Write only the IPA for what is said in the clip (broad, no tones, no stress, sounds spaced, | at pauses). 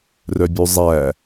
r œ bʲ ʉ zˤ æ